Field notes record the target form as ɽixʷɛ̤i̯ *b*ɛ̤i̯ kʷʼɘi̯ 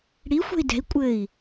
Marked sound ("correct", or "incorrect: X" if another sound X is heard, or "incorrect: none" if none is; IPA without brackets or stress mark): incorrect: d